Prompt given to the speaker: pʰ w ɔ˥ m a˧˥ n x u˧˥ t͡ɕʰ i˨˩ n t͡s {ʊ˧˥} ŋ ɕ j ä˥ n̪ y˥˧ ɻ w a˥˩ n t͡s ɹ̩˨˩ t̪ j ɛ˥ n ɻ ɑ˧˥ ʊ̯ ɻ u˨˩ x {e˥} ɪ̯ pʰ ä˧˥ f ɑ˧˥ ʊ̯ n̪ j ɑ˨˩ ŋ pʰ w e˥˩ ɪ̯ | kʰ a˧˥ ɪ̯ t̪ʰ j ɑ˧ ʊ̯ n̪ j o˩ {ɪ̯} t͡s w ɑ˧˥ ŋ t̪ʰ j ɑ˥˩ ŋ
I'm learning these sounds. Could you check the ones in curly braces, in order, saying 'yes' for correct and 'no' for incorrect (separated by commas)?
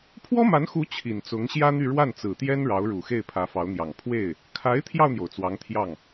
yes, no, no